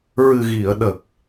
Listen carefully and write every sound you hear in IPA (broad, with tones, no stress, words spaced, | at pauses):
ɹɨ˨˩ɣi˨˩˨ə̯ɗə˨˩k̚